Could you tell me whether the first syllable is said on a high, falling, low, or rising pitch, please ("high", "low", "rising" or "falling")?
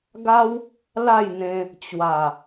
high